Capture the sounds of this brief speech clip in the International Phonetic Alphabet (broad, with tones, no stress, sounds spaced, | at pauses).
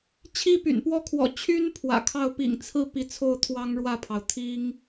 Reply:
t͡ɕʰ i˥ p y̰˨˩ n p w ɔ˥˩ kʰ w ɔ̰˨˩ t͡ɕʰ y˥ n pʰ w ä̰˨˩ kʰ ɑ˥˩ ʊ̯ p ḭ˨˩ ŋ t͡sʰ ɹ̩˥˩ p i˧˥ t͡sʰ o˥˩ ʊ̯ t̪ʰ w ɑ˥ ŋ ɻ w ä˥˩ pʰ ɑ˩ ʊ̯ t̪ʰ i˥ ŋ